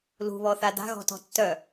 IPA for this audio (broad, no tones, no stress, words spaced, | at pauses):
lṳβɔθa da̤ɣɔ̤tɔ̤ tːœ